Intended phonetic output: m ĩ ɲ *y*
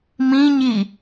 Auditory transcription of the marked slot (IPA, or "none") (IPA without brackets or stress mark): i